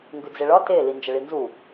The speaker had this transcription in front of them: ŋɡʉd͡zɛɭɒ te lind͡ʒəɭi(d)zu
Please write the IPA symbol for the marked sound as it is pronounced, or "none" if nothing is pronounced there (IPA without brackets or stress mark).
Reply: n